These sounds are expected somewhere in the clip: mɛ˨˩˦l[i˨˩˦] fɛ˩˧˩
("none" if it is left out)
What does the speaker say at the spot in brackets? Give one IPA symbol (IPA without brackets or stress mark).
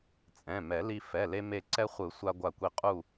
i˧